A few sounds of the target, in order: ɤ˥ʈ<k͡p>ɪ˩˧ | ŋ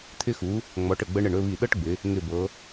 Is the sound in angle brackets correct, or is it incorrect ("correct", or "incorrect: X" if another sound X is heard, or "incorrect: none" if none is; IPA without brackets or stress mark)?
incorrect: ɡ͡b